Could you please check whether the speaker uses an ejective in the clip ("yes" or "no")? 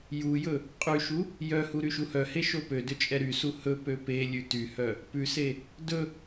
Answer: yes